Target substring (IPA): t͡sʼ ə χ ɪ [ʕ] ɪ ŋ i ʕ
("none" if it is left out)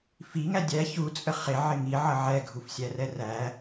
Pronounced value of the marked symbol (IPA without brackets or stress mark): ʕ